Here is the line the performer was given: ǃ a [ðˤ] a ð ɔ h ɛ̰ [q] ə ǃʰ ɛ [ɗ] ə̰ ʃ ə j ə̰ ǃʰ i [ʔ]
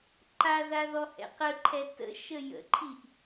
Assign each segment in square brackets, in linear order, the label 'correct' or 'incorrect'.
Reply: incorrect, correct, incorrect, correct

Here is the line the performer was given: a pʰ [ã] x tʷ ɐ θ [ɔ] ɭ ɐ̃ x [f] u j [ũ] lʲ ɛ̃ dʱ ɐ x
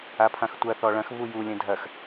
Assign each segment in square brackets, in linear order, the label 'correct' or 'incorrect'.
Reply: correct, correct, incorrect, incorrect

